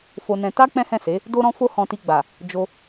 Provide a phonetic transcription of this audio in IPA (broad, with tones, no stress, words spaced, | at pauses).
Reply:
fo˧nɛ̃˧ ta˦ k͡pɛ̃˦hɛ̃˦˨ se˨˦ | do˦ɾɔ̃˦ fo˦hɔ̃˧ti˧ɡ͡ba˨ | d͡ʒo˧